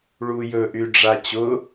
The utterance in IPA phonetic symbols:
ɭ u j ɵ ʔ y ɖ͡ʐ a t͡ɕ ʊ

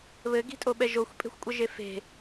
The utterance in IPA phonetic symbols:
β ɘ ɡ i̤ tʼ o ɓ ɛ ʒ o xʷ pʼ e̤ xʷ kʷʼ ə ʒ e f e̤

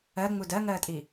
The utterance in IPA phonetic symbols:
ɜ ŋ͡m u d ɜ ŋ ɜː tʼ i

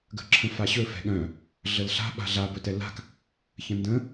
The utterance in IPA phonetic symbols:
ɡ ə̤ ǁʰ ə̃ f a ɕ ɵ f ɛ̤ ɠ œ̃ | ɮ ə l ɬ a̤ ɓ a̤ ɮ a b ɵ t ɛ l a̤ k | ç ə̃ n d ə̃

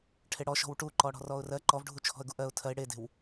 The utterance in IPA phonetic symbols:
ʈʰ e ɽ ɔ ʃ ɔ̤ w ʈ u ǃ ɔ ɽ ɔ̤ r ɔ ʊ̯ r ɜ ǃ ɔ v ɖʱ u t͡ʃʰ ɔ̤ ə̯ ɡ u ʔ ɜ ʊ̯ tʰ ɜ ɪ̯ ɽ e d e̤ w

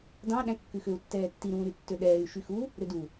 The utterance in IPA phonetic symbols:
d ɑ̃ ɗ æ̃ kː ʉ x ø u̯ tː ɛː tː i ɾ ũː ɾ y tː ø ɗ ɛː y̯ ʃ y x u | ɾ ø d u

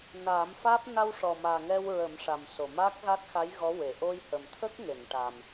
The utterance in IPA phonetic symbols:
n aː˨˩˦ m f aː˦˥ p̚ n a˧ w ʂ ɔ˨˩ m aː˨˩ ŋ ɛ˧ w ɹ ə˨˩˦ m ʂ a˨˩ m s o˨˩ m aː˦˥ k̚ ɣ a˦˥ t̚ x a˧˥ j ɣ ɔ˧˥ w e˨˩˨ ʔ o˧ j h ə˨˩ m t̪ʰ ə˦˥ k̚ ŋ e˨˩˨ n ʈ a˨˩ m

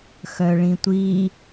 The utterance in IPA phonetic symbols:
x œ ɭ ĩ tʷ i

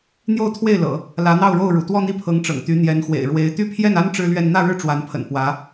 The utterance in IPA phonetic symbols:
n̪ j o˥˧ ʊ̯ t̪ʰ w e˥˩ ɪ̯ l ɤ̰˨˩˦ | l ä˧˥ n̪ ɑ˥˧ ʊ̯ ɻ o˥˩ ʊ̯ ɻ ṵ˨˩ t̪ w ɔ˥˧ n̪ i˥˩ pʰ ɤ˧˥ ŋ ʈ͡ʂ ɤ̰˨˩ ŋ t̪ y˧˥ n̪ j ɛ˧˥ n x w ḛ˨˩ ɪ̯ ɻ w e˧˥ ɪ̯ t̪ y˥ pʰ j ɛ˥˩ n a˥ n ʈ͡ʂ ɻ̩˥ l ɥ ɛ˥˧ n n̪ ä˥˧ ɻ ɻ̩˥˩ ʈ͡ʂ w a˧˥ n pʰ ə̰˨˩ n p w ä˧˥

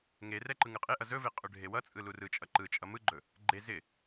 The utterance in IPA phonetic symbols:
ŋ e r ɛ ǃ ɯ ŋ ɯ qʼ e ʔ ʌ z ɵ v e qʼ ɵ ɖʱ e w ʌ t͡sʼ ɯ l u r ɯ t͡ʃʼ ʌ ǃ ɯ t͡ʃʼ ʌ m ɯ ɡ͡ǃ ɵ | ɡ͡ǃ e z ɪ

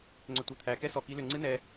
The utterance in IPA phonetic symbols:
ŋ͡ǀ ʏ tʷ æ t̪ʰ æ k ɛ s ɔ k i l ʏ ŋ͡ǀ ɨ n ɛ

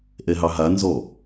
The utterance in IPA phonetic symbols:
ʔ ɛ ɦ ɑ ɦ a n z ɔ

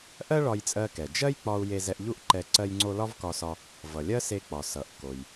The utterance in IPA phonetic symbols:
ʔ ɜ˥ ɭ ɒ˧ j t͡sʼ ɜ˧ k ɛ˩ d͡ʒ ɜ˥ j k͡p ɒ˧ u̯ j e˧ z ɛ˧ ʔ ʎ u˥ ʔ ǃ ɛ˧ ǀ ɜ˧ j ŋ͡ǀ o˧ l ɒ˥ v k ɒ˧ s ɒ˧ | v ʌ˩ lʲ ɜ˥ s e˧ k͡p ɒ˩ s ʌ˩ ʔ k o˩ j

